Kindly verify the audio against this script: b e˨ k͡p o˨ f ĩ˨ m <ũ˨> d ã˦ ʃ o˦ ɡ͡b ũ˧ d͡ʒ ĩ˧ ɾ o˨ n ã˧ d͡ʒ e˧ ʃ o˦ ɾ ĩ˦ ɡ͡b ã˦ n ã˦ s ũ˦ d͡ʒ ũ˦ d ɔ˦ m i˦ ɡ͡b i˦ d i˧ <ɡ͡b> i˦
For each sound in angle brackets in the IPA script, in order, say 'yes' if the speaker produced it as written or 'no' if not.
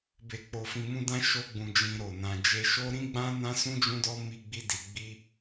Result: no, yes

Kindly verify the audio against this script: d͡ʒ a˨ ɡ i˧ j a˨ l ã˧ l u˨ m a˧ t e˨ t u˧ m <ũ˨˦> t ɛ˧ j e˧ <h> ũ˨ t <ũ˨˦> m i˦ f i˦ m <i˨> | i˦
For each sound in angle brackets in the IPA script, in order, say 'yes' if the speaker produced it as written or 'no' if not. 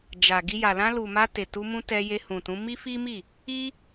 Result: no, yes, yes, no

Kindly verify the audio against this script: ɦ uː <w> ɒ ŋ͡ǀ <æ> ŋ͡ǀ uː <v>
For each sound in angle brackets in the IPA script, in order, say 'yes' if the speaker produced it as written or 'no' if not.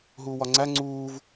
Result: yes, yes, yes

